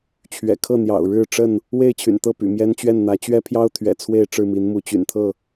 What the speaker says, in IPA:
t͡ɕʰ ɥ ɛ̰˨˩ kʰ ɤ˥˨ n̪ j ɑ̰˨˩ ʊ̯ ɻ ɻ̩˥˨ ʈ͡ʂ ə˥˨ n | w e˥˨ ɪ̯ t͡ɕʰ y̰˨˩ n t̪ ɤ˥˨ p y̰˨˩ m j ɛ˦ n t͡ɕ ɥ ɛ˥˨ n n̪ ä˨˦ t͡ɕ ɥ ɛ˦ pʰ j ɑ˦ ʊ̯ t̪ʰ ɥ ɛ̰˨˩ t͡sʰ w e˥˨ ɪ̯ ʈ͡ʂ ɻ̩˥˨ m i˨˦ n m u˨˦ t͡ɕ y̰˨˩ n t̪ʰ ɤ˥˨

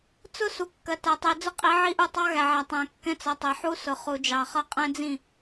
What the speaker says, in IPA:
t͡s ʊ˦ s u˨ kː ɜ˨ t ɜ˨ tˤ i˨ d͡z ʊ˦ qʼ i˨˦ ʕ i˦ ʔ u˦˨ tˤ ɑ˦ ɣ æ˨ ʕ æ˨ tˤ æ̃˨ kː ɛ̃˦ t͡s ʌ˨ tˤ ɛ˨ ħ u˦ s ʊ˨ χ u˨ d͡ʒ ɑ˨ χ ʌ˦˨ qʼ ɛ̃˦ d͡z ĩ˦˨

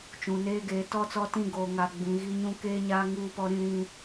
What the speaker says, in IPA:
t͡ʃ ũ˨ n eː˦ ɡ eː˨˦ t ɔ˦˨ t͡s ɔ˦ t ĩ˦˨ ɡ oː˨ ŋ a˨ ɡ͡b ĩ˨ ɣ i˦ ɲ ũ˦ k eː˦ ɲ aː˦ ŋ uː˦˨ p ɔ˦ ɾ ĩ˦ ɾ ĩ˦

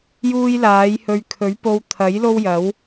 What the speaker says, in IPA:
j uː˥ j l aː˨˥ j h ɵ˧ ɥ kʰ ɵ˨˥ ɥ p o˧ w t̪ʰ ɐ˨˥ j l o˥ w j ɐ˨˥ w

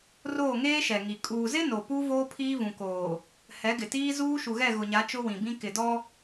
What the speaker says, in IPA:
r oː˦˨ ŋ eː˦ ʃ ɛ˨ ŋ i˨ kʼ uː˨ z ɪ˦ n o˨ p u˦ v oː˦ pʰ iː˦ v ũ˨ k oː˨ | h ɛ˨˦ ɡ ɪ˨ t iː˦ z uː˦ ʃ u˨ ɣ ɛ˦˨ ɣ ʊ˨ ɲ a˨˦ t͡ʃ ʊ˦ w ĩ˨ b ĩ˦ k ɪ˨ d ɔ˦

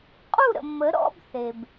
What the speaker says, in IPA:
qʼ u˥˨ ɾ ə̰˩ mː ə˩˥ ɾ ɔ̰˧˥˧ b θ e˩ b

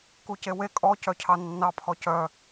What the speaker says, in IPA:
k u c e w e kʼ ɔ c œ cʰ ɑ nː ɑ pʰ ɔ c œ

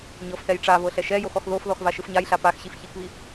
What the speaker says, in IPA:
ɲ ɤ f θ ɛ j ʈ͡ʂ a v ɤ ɬ ɛ ʃ ɛ j o x ɔ x ð o f ð ɔ x v a ʃ ɯ f ɲ a j ɬ a p a x ɕ i f ç i k β i

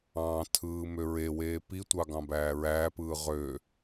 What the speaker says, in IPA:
ɑ̃ tʰ ɯː m ø ɹ e w eː p i tʷ ɑ ɡ ɑ̃ b æː ɹ æː p ɯː ʁ ø

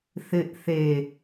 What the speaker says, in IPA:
θ ɪ ʔ θ e

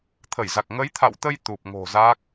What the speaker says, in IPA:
t̪ʰ ə˧˩ j z a˨˩ k̚ ŋ ə˨˦ j t̪ʰ a̰˧˨ w t̪ ə˧ j t̪ u˨˩ p̚ ŋ o̤˨˩ z a˦˥ k̚

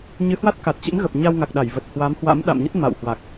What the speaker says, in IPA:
ɲ ɨ˨˦ h w a˦˥ t̚ k a˨˩ t̚ t͡ɕ ḭ˧˥ m ɣ ə˨˩ p̚ ɲ a˧ w ŋ a˨˩ k̚ ɗ a˧˩ j v ə˨˩ t̚ h w a˨˦ m h w a̰˧˥ m ɗ a̰˧˨ m ɲ ə˦˥ t̚ m a̰˧˨ w h w a˨˩ k̚

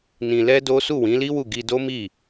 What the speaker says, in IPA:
n ĩ˧ l ɛ˦ d o˦ s u˦˨ w ĩ˨˦ l i˦ w u˦˨ ɡ i˧ d o˦ m i˦˨

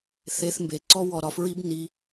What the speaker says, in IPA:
θ e˦˥ θ m b e˧ ǀ ɔ˦˥ w ɔ˧ ɾ ɒ˧ f ɹ i˦˥ b n i˦˥

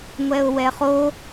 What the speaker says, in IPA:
ŋʷ ɛ ʊ̯ w ɛ χ o

